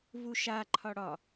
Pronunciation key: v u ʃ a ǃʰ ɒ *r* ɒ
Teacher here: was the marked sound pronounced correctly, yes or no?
no